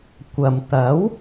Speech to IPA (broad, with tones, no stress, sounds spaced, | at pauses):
kʷ ɐ˨ m t̪ ɐ˨˥ w